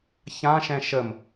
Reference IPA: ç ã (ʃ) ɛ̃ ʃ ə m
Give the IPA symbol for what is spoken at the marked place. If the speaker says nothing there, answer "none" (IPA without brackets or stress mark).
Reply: ʃ